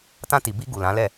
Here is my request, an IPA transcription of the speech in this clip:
t ã˧ t i˨ b i˧ ɡ u˨ l ã˨˦ l ɛ˦˨

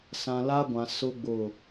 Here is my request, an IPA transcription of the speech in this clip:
s ã˨ l aː˦ ɡʷ ã˨ s ʊ˦ ɡ͡b ʊ˦˨

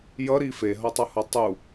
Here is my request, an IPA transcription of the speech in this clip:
j ʌ ɾ i f e ɦ ʌ tˤ ʌ h ʌ tˤ u

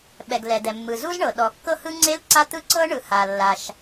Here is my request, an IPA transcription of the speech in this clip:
ɓ ɛ˩ ɡ l ɛ˩ d̪ ɛ˩ mː ɯ˩ z u˥ z ɳ ɤ˩ ɗ ɔ˩ kː ɤ˥ h ɯ˥ ŋ͡ǀ e˥ l ǀ a˥ t̪ ɯ˥ ǀ ɤ˥ ɳ ɯ˩ h a˩ lː a˩ ʃ

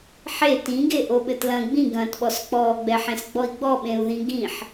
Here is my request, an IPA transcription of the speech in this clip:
ħ e t ĩ ɡ e ʔ o ɓ ɘ t l ɐ̃ ɡ͡b ĩ ɡ ɐ̃ː t ɓ ɔ s k͡p ɔː ɡ͡b ɛ ħ ẽ s ɡ͡b ɔ i̯ ɡ͡b ɔ ɓ ẽ u̯ ð ĩ ɡ ĩ ħ

